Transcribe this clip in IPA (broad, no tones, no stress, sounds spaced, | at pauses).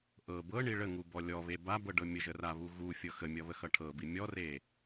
ʔ ɤ b ɤ ɳ i ɭ ə ŋ u b ɔ lʲ ɔ β e b a b ɤ ɖ ɤ mʲ ə ʒ ə r a β u ɣ u fʲ ɤ x ə mʲ ʌ β ə x ʌ ʈʰ ɤ b i mʲ ɔ r e